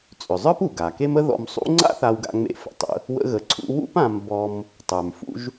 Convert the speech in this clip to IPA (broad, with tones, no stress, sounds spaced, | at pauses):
t͡sʼ ʏ˩ zˤ ə˞˥ p u˩ ɡ a˩ k e˥ m ə˥ ð ɔ̰˧ m sˤ ṵ˥ ŋ͡ǀ a̰˥ θ a˧ w ɡ a̰˧ ŋ͡m ḛ˧ f ə̰˩ tˤ ə̰˧ | w ə̰˥ ɣ ə˧ ǀʰ ṵ˥ w ṵ˥ p ã˧ m b ɔ˧ m | tˤ ə˞˩ m f ṵ˥ ʒ